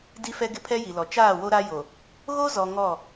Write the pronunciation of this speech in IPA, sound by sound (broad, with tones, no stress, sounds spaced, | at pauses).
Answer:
d i˦ f ɛ˦ ɡ ɪ˦ pʰ ɛ˦ j i˨ l ɔ˨ t͡ʃ aː˦˨ w o˦ ɾ a˦ j o˨ | ɣ o˦ z ɔ˨ ŋ ɔ˦˨